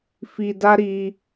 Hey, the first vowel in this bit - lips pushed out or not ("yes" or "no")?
no